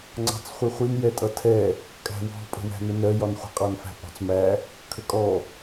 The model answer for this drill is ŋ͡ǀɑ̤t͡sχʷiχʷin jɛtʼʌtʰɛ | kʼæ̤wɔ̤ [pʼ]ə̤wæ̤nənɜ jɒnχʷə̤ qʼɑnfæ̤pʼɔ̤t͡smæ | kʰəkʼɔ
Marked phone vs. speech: correct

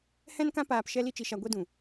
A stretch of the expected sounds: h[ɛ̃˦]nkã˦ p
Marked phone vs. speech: correct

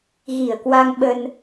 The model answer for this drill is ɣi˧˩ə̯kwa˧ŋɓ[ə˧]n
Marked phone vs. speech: correct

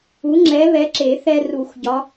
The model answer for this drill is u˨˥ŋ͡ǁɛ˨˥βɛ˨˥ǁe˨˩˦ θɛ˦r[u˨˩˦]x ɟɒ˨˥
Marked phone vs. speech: correct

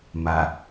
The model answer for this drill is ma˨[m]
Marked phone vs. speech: incorrect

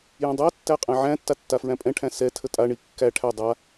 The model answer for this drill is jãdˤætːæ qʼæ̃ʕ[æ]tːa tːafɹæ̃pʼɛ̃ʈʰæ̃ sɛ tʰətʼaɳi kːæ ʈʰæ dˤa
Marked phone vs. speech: incorrect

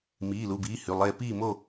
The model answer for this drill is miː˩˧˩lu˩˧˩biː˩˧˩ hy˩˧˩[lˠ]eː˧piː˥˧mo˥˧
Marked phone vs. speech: correct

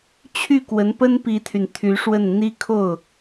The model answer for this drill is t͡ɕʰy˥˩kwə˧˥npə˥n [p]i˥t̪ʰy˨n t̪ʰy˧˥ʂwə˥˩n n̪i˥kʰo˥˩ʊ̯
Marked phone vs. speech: correct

